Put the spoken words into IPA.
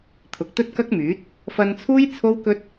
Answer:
t̪ʰ ʊ˨ k̚ t̪ ɵ˥ t̚ k ɐ˥ k̚ m yː˨˥ t̚ | f ɐ˧ n t͡sʰ uː˥ j t͡sʰ o˥ w k ɵ˥ t̚

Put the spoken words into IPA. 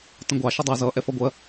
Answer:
t ə̃ ɡʷ ɑ ʃ ə dˤ ʌ z ʌ ʔ ɛ f ʌ ɡʷ ɜ

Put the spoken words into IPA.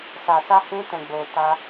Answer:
s a˨ s a˧ h ũ˧ t ɛ̃˨ ɡ͡b o˨ t a˧

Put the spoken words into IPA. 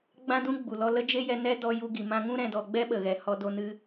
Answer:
ɡ͡b ã˦ d ũ˦ ɡ͡b u˨ l ɔ˧ l ə˦ d͡ʒ e˦ j ɛ˧ n ɛ˦ d ɔ˧ j u˧ ɡ i˨ m ã˧ ŋ ũ˦ ɾ ɛ̃˨ d ɔ˨ ɡ͡b ɛ˦ ɓ ə˨ ɣ ɛ˨ h ɔ˧ d o˧ n ɨ˧

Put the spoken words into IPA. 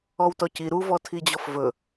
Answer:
ɔ w t ɔ c i ɾ u v ɔ tʰ i d͡ʑ ɔ f v ɵ

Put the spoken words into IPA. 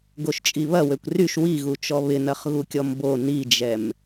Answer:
ɡ o ʃ t͡ʃʼ i β ɐ w ø kʷ r y ʃ w i ɣ u t͡ʃ ɔ β ɪ n ɐ χ ɣ u kʲ ɔ m b o n i d͡ʒ ɛ m

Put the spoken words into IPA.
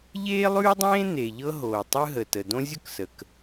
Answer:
ʎ eː˥ lˠ ʉː˥ dˤ ẽː˥ n̪ e˩ ʎ ɤ˥ ɦ oː˩ tˤ ɯ˥ ɦ ə˩ t ə˩ d õ˥ zʲ ʊ˥ k s ə˩ k

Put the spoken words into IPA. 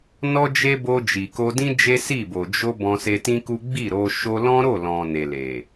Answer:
n ɔ˦ d͡ʒ e˦ b o˧ d͡ʒ i˨ k o˧ d ĩ˦ d͡ʒ e˦ s i˦˨ b o˨ d͡ʒ o˧ b ɔ̃˧ s e˧ t ĩ˦ k u˦ ɡ͡b i˦˨ ɾ o˧ ʃ o˧ l ɔ̃˦ ɾ o˦˨ l ɔ̃˨ n e˨ l e˨

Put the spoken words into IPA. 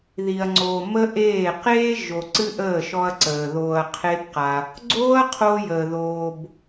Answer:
ð i˨ ɐ̯ ŋ͡ǀ oː˨ m ə˦ ʔ eː˦˨ q eː˦ ʒ o˨ ǀ ɨ˦ ʔ əː˦˨ ʃ ɔ˧ ɐ̯ ǀ əː˨ ð oː˧ ɐ̯ qʰ e˦ b q a˧ | ɡ͡ǀ oː˦ ɐ̯ qʰ oː˧ j əː˨ ð oː˧ b

